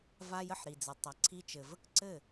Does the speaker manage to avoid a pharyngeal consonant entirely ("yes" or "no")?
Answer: no